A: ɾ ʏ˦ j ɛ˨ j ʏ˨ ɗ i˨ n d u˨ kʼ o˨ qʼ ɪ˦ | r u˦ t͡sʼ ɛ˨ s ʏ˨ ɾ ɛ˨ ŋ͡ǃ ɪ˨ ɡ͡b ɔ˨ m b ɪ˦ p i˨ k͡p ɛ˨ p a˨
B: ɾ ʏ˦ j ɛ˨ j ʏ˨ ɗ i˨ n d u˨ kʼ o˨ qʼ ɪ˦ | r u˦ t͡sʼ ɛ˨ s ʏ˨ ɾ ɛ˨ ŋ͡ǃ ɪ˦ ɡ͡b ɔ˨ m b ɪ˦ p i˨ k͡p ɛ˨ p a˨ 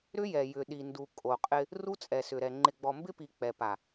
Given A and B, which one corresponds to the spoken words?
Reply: A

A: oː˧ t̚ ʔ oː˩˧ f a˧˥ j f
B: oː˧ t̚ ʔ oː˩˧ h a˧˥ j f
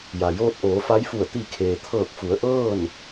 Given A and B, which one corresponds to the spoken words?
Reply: A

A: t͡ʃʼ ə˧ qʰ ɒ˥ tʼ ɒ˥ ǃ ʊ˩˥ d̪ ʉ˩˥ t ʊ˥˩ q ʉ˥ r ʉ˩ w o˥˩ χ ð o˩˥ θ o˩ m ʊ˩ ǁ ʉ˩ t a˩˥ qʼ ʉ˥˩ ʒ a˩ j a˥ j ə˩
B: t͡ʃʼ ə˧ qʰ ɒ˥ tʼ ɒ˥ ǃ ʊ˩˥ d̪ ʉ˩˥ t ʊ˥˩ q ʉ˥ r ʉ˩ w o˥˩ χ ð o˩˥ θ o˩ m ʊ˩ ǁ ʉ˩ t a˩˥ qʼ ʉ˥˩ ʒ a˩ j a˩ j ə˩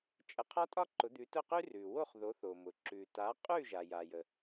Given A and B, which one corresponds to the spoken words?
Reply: B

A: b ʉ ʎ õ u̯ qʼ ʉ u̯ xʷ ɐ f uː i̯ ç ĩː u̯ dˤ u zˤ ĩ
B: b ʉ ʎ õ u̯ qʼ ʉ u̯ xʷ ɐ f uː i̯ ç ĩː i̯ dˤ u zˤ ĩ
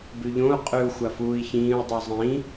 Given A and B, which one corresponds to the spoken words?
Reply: A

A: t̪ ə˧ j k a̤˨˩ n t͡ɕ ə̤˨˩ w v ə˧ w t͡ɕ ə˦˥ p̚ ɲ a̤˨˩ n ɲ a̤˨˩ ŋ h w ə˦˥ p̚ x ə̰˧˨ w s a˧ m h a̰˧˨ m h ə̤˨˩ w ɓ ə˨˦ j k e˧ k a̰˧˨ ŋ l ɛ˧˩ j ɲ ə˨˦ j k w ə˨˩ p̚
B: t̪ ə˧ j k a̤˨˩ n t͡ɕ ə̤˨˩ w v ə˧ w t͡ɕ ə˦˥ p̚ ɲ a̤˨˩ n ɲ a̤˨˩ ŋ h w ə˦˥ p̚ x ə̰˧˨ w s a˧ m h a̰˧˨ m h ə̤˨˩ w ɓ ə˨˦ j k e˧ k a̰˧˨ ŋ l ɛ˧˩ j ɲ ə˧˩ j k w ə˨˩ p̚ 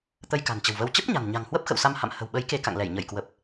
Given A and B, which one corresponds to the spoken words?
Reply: B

